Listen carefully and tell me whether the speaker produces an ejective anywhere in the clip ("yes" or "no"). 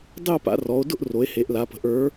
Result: no